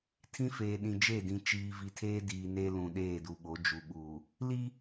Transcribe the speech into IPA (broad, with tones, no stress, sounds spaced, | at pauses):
tʰ ĩ˦ f eː˨ ɗ ĩ˨ d͡ʒ e˦˨ d ĩ˨ t͡ʃ iː˨ v i˨ tʰ eː˦ d iː˨ n e˦ l ũ˨ ɗ eː˦˨ d u˨ ɓ o˨˦ d͡ʒ u˨ ɓ uː˨ | l i˦